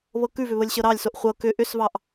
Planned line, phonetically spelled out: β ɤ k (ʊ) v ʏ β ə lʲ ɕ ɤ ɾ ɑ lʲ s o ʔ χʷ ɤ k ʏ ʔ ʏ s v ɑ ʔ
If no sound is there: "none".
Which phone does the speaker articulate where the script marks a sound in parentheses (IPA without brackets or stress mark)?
ʉ